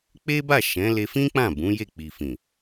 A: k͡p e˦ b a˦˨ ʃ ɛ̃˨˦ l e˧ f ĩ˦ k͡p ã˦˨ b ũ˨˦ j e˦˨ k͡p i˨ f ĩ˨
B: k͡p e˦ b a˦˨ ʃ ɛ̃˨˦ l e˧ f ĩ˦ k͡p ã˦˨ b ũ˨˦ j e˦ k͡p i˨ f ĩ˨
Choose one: A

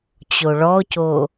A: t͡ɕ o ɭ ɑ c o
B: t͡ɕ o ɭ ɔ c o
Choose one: B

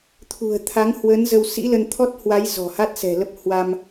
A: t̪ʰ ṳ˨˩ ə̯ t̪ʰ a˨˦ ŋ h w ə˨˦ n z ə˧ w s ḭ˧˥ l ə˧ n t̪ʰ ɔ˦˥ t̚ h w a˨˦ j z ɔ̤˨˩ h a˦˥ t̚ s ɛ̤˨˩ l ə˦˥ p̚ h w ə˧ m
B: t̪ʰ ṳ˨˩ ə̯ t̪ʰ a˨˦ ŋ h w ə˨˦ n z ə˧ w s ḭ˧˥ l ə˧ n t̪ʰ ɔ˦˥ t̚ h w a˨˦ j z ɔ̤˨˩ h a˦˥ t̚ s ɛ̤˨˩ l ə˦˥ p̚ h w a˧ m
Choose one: B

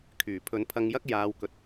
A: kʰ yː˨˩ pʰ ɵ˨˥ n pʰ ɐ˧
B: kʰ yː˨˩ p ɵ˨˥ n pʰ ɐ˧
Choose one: A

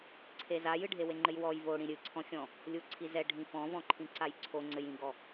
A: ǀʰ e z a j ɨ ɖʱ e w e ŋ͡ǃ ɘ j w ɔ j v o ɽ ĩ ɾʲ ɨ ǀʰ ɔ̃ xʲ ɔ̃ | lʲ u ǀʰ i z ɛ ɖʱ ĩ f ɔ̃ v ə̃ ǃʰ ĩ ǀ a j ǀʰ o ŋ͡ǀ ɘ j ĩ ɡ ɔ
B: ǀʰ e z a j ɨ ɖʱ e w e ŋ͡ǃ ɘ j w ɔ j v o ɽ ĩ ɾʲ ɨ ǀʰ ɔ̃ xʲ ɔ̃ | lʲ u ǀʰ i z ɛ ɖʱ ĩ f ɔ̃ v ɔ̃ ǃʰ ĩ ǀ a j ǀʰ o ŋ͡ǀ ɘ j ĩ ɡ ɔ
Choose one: B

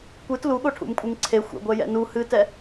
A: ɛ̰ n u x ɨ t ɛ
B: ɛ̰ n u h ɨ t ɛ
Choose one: B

